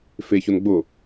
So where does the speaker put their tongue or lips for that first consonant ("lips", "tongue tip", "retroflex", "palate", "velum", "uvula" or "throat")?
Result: lips